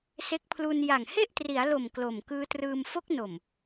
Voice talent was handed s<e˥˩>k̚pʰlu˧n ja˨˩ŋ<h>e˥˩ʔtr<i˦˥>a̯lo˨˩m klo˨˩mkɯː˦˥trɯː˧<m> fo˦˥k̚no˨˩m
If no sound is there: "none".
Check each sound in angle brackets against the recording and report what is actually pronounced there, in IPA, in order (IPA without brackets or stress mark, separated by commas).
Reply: e˦˥, h, i˩˦, m